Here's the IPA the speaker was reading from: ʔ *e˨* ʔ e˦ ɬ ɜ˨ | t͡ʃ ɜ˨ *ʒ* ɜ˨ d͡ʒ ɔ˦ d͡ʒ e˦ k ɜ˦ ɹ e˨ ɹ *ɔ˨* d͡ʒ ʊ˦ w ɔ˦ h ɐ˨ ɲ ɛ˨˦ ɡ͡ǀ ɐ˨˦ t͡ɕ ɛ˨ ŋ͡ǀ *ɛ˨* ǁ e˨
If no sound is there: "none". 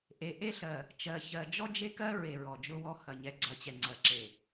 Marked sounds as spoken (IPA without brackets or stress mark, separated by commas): e˨, ç, ɔ˨, ɜ˨